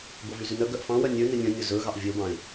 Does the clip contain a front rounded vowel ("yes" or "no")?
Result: yes